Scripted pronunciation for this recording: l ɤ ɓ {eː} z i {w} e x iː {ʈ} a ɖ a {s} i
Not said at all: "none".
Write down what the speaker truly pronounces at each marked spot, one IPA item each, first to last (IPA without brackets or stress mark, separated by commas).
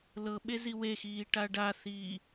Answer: e, w, ʈ, θ